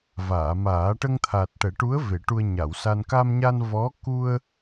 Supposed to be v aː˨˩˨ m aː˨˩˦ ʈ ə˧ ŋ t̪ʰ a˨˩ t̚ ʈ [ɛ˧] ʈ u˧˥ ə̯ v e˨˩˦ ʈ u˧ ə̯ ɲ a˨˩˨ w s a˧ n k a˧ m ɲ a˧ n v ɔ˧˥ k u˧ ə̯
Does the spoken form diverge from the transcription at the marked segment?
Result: yes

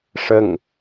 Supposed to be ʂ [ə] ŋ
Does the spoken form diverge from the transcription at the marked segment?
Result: no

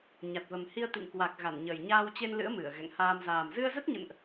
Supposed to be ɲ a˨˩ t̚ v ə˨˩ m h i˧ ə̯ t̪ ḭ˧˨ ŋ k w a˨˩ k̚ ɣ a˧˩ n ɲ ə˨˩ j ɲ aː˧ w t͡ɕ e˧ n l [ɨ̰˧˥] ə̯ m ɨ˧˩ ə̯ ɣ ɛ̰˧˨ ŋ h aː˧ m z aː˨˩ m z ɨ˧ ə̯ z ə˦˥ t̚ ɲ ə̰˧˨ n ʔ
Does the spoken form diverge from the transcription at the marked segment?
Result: no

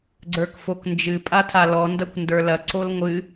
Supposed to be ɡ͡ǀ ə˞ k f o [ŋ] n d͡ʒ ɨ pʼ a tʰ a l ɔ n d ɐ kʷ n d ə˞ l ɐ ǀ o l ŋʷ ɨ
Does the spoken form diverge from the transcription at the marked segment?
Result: yes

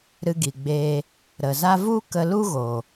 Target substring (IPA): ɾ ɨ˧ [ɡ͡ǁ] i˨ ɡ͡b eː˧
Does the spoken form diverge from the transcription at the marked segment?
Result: yes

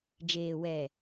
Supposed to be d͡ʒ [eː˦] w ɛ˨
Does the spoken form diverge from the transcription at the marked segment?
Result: yes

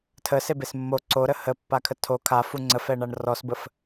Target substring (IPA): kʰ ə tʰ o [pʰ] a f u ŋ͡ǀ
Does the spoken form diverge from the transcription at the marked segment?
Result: yes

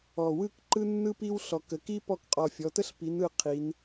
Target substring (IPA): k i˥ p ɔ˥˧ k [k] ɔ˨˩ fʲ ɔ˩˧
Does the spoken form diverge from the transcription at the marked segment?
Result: yes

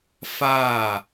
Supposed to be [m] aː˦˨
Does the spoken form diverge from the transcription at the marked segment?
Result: yes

